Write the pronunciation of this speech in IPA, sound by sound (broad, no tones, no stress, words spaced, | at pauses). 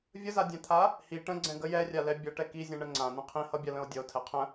vʲəzadʲɛ̃t̪ʰa | hi ʈə̃ɡ͡ǀɛ̃ ɡəj ɛrʲalɛ bʲʌʈɛ kizʲɛ̃ɳə ŋ͡ǀãnə̃ qʰĩhʌbʲalə̃o̯ dʲʌo̯tʰɛ qʰə̃